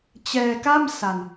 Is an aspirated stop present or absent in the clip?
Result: absent